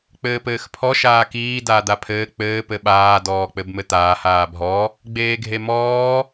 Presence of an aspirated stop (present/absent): present